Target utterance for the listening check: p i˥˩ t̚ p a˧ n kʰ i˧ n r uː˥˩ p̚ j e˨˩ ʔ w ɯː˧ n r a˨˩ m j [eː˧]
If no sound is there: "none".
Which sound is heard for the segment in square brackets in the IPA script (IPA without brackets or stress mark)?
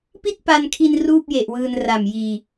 iː˧